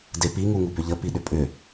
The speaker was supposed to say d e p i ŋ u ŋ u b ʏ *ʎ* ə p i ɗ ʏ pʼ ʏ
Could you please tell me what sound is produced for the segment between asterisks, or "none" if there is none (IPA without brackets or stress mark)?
ʎ